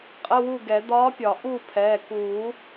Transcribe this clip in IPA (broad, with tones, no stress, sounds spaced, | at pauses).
qʼ ə˧˥˧ w u˥˨ ɡ ɛ˨˩˦ d̪ ɒː˧˥ pʲ ɒ˨˩˦ ʔ u˥˨ pʰ ɛː˩˧˩ k uː˨˩˦